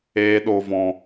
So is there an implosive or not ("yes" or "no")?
yes